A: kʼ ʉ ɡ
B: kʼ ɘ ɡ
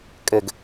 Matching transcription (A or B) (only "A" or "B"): B